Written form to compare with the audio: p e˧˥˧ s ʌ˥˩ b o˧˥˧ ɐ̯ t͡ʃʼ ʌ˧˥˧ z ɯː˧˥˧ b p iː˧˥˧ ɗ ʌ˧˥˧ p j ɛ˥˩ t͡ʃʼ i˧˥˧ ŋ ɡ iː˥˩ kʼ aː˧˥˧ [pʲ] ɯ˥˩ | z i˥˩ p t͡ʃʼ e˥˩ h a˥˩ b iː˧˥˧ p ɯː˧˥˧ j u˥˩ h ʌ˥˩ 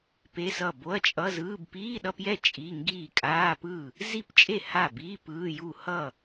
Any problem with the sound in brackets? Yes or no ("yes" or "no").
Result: yes